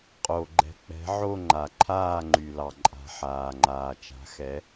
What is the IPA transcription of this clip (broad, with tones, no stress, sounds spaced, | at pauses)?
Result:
qʼ o˨ ɡ͡ǃ ɛ̤˨ k͡p ɛ̤˨˥ ʕ o˥˨ ŋ͡ǃ a˨ ǃʰ aː˥˨ ŋ͡ǃ y˨ l ɑ˨ ǃʼ a̤˨ ħ aː˨ ŋ͡ǃ aː˨ t͡ʃ a̤˨˥ x ɛ˨˥